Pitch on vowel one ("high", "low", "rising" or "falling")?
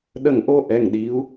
falling